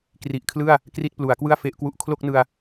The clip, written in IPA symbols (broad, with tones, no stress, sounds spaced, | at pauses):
k r i˨˩ ʔ kʰ l ɯ˥˩ a̯ | k r i˥˩ t̚ p l u˩˦ a̯ k w ɯ˥˩ a̯ f e˦˥ ʔ k w u˦˥ ʔ kʰ l o˥˩ k̚ n ɯ˧ a̯